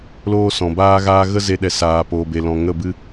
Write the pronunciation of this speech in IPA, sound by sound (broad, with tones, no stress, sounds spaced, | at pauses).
l oː˦ s ɔ̃˨ b aː˦ ɣ aː˦ ɣ ə˦ z e˧ ɗ ɛ˨ s aː˨ p oː˨ b e˨ l ɔ̃˨ ŋ ə˦˨ b ɨ˦